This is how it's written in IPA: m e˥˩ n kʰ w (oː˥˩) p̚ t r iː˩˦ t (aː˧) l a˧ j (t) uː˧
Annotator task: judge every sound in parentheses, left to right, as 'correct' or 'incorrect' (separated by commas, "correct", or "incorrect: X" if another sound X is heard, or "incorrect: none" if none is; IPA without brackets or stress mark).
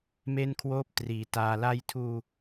correct, correct, incorrect: tʰ